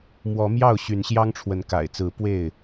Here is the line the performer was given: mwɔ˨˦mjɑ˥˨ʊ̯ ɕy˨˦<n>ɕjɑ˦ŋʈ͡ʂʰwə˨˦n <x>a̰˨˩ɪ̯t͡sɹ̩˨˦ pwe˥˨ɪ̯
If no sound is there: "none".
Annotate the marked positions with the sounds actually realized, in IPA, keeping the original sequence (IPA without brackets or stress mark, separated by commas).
n, k